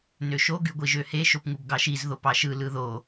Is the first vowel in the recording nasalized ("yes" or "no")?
no